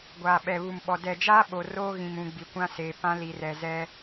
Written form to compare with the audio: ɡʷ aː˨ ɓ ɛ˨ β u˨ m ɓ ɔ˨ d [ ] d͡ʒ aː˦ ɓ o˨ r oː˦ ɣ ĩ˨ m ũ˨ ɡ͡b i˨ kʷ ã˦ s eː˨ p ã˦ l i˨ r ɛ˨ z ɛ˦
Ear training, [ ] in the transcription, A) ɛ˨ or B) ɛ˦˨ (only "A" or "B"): A